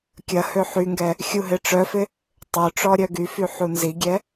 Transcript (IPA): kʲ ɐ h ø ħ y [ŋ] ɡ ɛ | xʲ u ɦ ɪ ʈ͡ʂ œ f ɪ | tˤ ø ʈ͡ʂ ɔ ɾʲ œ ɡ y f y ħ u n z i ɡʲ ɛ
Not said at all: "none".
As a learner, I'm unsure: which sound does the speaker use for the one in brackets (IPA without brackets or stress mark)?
ŋ